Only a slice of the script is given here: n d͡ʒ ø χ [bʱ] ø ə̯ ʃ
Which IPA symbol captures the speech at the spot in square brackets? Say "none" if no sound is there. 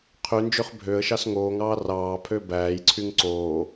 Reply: bʱ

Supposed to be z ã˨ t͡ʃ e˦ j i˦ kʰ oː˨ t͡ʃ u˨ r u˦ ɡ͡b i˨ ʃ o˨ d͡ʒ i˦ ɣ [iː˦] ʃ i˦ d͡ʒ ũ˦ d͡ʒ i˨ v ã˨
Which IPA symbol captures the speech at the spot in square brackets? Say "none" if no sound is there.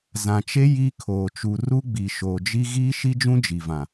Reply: iː˦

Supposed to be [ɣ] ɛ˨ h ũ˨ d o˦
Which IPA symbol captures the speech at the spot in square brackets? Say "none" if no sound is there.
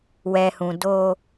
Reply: w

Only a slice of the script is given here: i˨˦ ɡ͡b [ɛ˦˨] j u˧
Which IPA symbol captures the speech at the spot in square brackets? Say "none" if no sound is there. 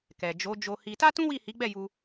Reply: ɛ˦˨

